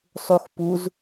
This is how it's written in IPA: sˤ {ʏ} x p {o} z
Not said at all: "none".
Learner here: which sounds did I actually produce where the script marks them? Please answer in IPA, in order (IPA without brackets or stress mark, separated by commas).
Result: u, u